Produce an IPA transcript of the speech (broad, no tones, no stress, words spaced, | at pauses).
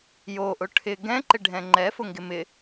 joʔʊ ʈʰɪ ɡɛ̃ǃɪɖʱɛ̃ ŋ͡ǃɛfʊŋɡɪ mɪ